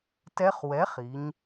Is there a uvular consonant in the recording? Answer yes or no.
yes